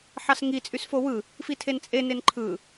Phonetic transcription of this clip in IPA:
ħɑsŋi t͡sʼysfowɯ | fitʰent͡sʼe nenǃʰɯ

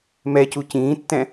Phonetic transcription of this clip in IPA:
mɛ cucĩːtːɛ̃

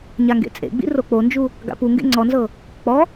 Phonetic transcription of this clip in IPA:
ɲaŋɡḛt͡sʼḛɡ͡bḭ rok͡pond͡ʒu | ɡa̰puŋɡḛ ŋ͡ǀɔnzɤ | k͡pɔ

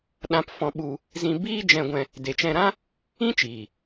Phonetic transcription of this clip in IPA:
ɗã˧pfɔ̃˧ɓu˧ | zĩ˧biː˦ d͡ʒɛ̃˧ɡʷɛ̃˧ | de˨t͡ʃɛ̃˧ɾã˦ | ĩ˦t͡ʃiː˨

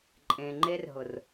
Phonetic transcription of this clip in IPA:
ǃʼẽ˨ŋ͡ǃe˦rɦʊ˨r

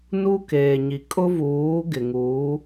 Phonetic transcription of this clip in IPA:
nu˦keː˨ɲi˨ kʼʊ˦vuː˨˦ ɡɪ˨ŋuː˨˦

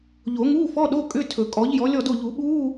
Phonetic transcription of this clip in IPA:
ʎo˨˩˦ŋuː˧˥˧fɔ˧˥˧ ɗo˧˥˧kʼʏ˧˥˧ tʰɵ˨˩˦kʼɔ˨˥ʎjɔ˨˥ lʲɔ˥˨do˥˨ ʎu˨˩˦ɓuː˧˥˧

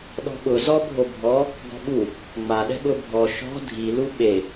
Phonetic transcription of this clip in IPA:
ɗɔ̤ɓʊ zɔbʱobʱɔ | ɡɔ̤ɓu | ŋ͡maɗɛ̤ɓʊ bʱɔ ʃɔ̤ dʱilu ɓe

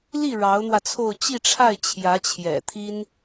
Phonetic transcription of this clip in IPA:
li˥˩ ɻɑ˧˥ʊ̯n̪wä˧t͡sʰo˥˧ʊ̯ t͡ɕi˥˧ʈ͡ʂʰa˥˩ɪ̯ t͡ɕʰjä˧˥t͡ɕʰjɛ̰˨˩t̪ʰi˥n

